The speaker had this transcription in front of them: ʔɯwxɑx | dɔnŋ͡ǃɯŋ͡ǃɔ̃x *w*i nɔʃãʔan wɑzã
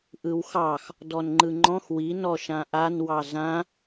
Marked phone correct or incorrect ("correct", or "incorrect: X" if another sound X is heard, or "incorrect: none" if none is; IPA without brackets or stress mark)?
correct